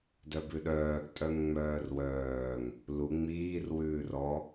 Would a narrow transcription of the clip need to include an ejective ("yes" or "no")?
yes